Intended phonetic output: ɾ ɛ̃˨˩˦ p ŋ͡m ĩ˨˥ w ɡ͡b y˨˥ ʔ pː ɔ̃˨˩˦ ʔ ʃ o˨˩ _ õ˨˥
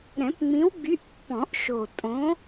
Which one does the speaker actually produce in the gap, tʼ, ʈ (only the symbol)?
tʼ